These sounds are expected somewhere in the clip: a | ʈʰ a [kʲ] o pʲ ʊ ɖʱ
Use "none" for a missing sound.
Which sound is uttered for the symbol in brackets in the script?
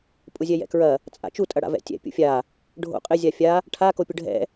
k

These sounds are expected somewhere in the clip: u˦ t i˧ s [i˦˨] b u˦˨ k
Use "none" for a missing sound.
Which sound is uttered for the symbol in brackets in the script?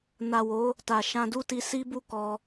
i˦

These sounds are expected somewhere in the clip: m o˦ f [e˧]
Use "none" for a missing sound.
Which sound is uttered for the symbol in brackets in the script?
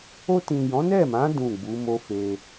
e˧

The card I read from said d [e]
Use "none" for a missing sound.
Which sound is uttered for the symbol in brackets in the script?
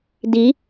i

